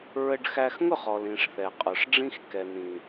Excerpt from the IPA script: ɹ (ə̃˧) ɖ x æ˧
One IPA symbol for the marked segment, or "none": ə˧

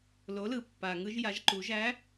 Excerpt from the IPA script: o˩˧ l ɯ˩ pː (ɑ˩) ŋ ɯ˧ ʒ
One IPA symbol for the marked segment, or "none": a˩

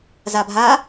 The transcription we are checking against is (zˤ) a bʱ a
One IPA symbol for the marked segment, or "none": z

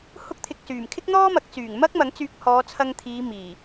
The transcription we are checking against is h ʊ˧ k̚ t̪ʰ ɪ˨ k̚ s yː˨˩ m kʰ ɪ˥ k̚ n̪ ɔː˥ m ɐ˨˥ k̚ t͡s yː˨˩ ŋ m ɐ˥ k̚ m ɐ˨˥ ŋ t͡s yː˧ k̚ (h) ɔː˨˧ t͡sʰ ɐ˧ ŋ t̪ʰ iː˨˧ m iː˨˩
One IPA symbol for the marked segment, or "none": h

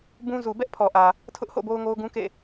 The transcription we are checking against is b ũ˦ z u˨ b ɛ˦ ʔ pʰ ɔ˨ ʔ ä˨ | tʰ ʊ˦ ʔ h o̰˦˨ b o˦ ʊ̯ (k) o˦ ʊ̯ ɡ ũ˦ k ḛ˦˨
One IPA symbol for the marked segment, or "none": ŋ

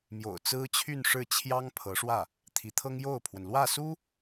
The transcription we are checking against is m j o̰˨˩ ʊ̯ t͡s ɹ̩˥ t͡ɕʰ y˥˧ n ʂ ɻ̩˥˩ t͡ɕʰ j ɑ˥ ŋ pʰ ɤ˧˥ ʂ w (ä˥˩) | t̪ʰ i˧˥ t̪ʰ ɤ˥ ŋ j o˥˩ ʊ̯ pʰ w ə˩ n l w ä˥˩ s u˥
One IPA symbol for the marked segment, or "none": ä˥˩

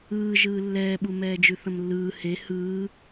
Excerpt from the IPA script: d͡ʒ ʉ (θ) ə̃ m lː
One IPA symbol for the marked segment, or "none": θ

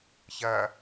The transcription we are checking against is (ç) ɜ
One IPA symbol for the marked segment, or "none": ç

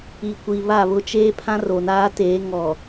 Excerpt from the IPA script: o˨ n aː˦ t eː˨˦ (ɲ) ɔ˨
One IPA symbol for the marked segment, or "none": ŋ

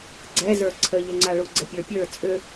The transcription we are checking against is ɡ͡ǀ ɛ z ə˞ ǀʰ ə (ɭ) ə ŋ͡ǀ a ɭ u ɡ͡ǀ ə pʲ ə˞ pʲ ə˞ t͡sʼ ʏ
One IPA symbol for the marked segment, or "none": ʎ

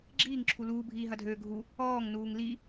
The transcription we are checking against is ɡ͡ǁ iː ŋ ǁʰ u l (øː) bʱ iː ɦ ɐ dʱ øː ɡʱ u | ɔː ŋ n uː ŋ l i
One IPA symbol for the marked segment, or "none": uː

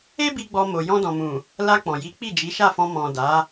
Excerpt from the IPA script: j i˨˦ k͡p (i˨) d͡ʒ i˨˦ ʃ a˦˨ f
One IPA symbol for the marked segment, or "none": i˦˨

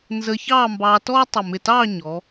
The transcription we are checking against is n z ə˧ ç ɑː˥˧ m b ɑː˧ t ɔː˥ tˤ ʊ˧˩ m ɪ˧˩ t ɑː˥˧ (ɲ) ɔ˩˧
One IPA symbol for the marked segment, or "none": ɲ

